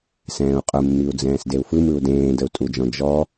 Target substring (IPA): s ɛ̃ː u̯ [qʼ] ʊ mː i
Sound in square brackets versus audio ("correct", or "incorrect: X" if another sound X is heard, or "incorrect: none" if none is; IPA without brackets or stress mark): correct